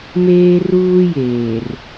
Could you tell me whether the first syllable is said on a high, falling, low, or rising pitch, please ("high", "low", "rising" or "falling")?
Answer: high